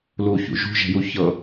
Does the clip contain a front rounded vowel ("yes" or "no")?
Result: no